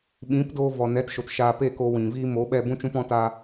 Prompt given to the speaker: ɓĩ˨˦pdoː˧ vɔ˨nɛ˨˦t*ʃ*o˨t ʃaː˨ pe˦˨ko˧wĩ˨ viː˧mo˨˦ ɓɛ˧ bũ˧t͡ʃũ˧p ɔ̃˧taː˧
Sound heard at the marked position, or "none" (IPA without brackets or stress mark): ʃ